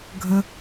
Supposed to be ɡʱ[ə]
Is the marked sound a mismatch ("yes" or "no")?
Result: no